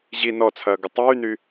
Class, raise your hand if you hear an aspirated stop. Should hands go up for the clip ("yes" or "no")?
yes